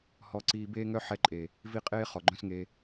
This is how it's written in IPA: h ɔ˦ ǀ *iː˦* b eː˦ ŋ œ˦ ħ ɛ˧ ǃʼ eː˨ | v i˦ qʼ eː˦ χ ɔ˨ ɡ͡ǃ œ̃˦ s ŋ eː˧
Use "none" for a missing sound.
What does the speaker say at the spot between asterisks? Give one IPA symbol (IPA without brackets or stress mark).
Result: iː˦